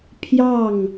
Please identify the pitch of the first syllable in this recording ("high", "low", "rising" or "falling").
falling